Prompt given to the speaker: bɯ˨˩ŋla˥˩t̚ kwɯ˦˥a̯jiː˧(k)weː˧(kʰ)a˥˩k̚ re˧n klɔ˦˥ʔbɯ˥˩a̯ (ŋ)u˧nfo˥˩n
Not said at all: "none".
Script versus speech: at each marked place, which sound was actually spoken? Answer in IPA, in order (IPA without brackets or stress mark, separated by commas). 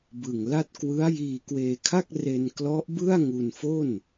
k, kʰ, ŋ